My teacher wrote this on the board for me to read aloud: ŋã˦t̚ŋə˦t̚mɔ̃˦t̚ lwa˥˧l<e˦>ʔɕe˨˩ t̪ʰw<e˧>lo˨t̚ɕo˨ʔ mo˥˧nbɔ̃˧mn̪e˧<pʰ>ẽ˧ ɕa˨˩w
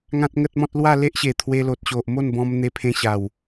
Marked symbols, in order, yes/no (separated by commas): yes, yes, yes